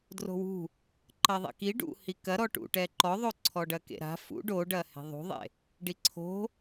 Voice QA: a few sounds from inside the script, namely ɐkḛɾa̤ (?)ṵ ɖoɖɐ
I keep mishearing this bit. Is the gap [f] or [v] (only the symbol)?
f